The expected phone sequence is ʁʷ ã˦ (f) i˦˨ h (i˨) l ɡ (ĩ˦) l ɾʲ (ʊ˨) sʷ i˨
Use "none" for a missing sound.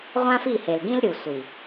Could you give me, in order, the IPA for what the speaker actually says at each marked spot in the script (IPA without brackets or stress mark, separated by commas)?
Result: f, e˨, ĩ˦, u˨